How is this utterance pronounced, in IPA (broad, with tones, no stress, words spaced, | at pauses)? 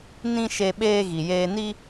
nĩ˦ʃe˧ ɓeː˦ɣi˨jeː˦ ni˦